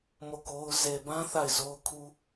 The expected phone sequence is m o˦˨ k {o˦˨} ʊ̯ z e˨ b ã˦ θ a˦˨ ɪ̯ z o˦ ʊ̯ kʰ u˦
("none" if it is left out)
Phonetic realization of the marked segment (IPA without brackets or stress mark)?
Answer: o˦